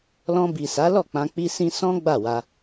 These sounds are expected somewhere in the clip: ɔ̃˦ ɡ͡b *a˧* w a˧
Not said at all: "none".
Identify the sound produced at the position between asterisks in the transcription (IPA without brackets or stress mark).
a˦˨